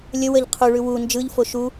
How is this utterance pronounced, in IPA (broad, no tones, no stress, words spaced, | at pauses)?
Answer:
lʲə wəʎ qʰuɭʉ wu nd͡ʒɯʎfo ʃu